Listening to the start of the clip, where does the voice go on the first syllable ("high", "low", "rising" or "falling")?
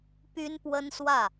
high